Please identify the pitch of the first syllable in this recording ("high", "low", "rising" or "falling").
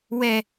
low